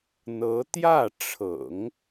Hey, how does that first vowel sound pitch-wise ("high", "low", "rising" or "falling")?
rising